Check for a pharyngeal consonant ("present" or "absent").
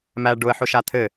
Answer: present